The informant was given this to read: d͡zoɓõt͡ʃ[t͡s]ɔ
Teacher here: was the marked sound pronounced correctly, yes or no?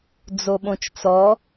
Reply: yes